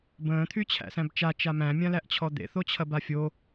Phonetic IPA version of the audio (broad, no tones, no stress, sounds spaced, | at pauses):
b ə̃ː t̪ʰ y t͡ɕʰ æ̰ s æ̃ b t͡ʃ a t͡ʃ a m æ̃ mʲ ã l æ ʔ t͡ɕʰ ɔ d̪ ḛ θ o t͡ɕʰ ɐ b a fʲ o